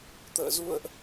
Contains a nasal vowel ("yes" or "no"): no